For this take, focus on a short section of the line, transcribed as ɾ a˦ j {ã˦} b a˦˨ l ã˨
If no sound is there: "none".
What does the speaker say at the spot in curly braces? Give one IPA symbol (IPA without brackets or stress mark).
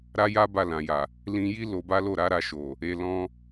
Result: a˦